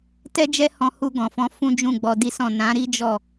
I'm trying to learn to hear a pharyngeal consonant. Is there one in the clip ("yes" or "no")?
no